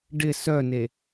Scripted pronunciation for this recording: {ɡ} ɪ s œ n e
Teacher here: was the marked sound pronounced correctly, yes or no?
no